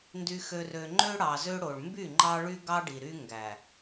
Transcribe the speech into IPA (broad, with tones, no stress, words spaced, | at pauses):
ndy˨xø˨rø˨ ŋ͡ǃø˦ɽɑ˨zø˦ɽo˨ɭ mby˦˨ŋ͡ǃɑ˦ɭy˦ ɡɑ˦ɖi˨ɾy˦ ŋɡæ˨